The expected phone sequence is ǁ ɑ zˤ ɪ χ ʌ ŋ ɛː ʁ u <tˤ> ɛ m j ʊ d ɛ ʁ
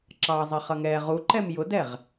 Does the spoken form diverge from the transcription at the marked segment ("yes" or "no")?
yes